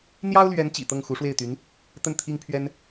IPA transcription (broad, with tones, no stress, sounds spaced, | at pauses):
n̪ j ɑ˥ ʊ̯ l ɥ ɛ˧˥ n t͡ɕ ḭ˨˩ t̪ ɤ˥˩ ŋ x u˧˥ ʂ w e˥˩ ɪ̯ t̪ y˧˥ n | t̪ ə˥˩ n t̪ʰ i˥ ŋ pʰ ɥ ɛ˥ n